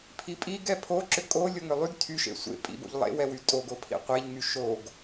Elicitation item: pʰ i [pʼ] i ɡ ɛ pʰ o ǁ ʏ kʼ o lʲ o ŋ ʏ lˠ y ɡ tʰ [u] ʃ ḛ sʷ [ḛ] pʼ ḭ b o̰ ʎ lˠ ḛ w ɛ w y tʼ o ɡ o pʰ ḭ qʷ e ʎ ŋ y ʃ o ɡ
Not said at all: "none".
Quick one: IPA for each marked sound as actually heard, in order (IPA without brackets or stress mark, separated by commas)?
pʼ, y, ḛ